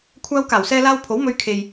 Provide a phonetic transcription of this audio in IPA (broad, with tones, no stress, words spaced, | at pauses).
kʷʰaː˧wkaː˨˩wsɛː˧laː˧w pʰo˨˥wmɵ˧ɥ kʰe˨j